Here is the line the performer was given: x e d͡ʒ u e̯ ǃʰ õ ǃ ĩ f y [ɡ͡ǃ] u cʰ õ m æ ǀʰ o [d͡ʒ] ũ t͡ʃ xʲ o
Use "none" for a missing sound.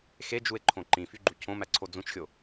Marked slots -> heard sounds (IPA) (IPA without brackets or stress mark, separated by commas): ɡ͡ǃ, d͡z